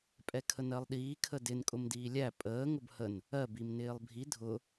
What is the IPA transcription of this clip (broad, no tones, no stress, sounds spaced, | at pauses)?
pʼ ɛ kʰ ə n ɜ lˠ ɗ iː kʰ ə d ɪ n kʼ ʊ m d iː lʲ æ pʼ əː ŋ ʊ b h ə n | ɜ b i m n ɪː lˠ bʱ i dʱ ʊ